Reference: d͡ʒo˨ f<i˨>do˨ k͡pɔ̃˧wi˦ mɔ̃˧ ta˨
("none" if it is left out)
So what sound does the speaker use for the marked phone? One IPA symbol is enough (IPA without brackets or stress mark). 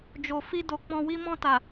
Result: i˧